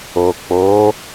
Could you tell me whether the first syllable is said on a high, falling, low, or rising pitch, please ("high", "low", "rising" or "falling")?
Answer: low